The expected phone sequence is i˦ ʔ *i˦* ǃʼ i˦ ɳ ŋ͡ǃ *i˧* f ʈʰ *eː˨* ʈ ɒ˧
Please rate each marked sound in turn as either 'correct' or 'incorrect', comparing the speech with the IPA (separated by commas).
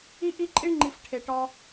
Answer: correct, correct, incorrect